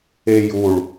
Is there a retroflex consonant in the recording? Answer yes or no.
yes